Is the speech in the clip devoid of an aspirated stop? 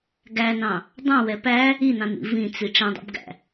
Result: yes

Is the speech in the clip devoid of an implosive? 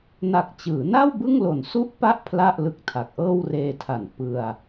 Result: yes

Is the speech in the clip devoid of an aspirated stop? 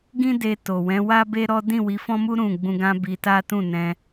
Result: yes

